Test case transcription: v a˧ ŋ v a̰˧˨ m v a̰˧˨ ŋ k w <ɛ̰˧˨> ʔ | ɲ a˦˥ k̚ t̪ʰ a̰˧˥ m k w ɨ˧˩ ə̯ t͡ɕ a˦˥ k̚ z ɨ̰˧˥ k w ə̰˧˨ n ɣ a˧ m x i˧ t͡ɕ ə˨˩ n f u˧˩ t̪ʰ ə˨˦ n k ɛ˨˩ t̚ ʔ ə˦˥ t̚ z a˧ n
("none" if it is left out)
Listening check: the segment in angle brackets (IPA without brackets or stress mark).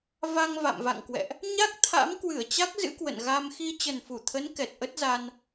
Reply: ɛ̰˧˨